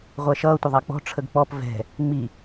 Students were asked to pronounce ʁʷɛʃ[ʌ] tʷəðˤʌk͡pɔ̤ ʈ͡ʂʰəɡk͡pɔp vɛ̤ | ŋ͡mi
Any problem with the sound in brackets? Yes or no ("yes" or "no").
yes